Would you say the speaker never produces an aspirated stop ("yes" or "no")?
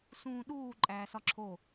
no